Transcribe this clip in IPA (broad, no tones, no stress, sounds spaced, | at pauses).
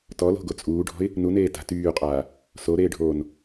t ɔ l o̤ ɡ o t͡sʼ uː ɖʱ ɔ̤ ɪ̯ | n u n eː t a̤ t yː qʼ aː | s o ɾ eː ɖʱ oː n